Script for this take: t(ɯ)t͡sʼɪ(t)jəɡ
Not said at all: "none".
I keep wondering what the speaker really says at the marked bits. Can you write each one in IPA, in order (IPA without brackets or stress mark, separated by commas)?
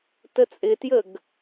ə, t